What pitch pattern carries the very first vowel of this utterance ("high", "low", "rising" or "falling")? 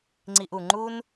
low